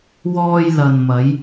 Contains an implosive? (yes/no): no